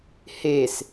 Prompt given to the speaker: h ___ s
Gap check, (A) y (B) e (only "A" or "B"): B